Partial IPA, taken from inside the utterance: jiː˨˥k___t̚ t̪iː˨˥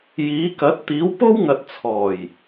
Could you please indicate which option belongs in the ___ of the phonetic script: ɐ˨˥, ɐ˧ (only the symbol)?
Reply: ɐ˨˥